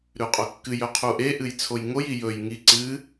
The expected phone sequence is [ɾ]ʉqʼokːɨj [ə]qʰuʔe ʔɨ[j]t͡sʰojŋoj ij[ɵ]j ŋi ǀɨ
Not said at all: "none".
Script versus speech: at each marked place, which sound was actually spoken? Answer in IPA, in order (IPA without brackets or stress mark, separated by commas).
ɾ, ɵ, j, ɵ